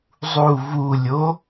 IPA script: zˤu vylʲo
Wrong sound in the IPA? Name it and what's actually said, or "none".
y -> u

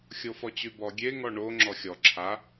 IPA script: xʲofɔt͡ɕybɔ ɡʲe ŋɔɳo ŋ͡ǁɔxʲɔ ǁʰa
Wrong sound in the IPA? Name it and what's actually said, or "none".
none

